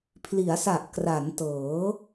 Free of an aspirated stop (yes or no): no